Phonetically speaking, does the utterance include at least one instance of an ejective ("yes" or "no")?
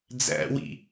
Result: no